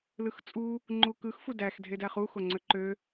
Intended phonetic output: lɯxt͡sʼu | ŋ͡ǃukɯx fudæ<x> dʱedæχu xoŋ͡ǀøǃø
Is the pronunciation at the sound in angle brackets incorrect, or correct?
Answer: correct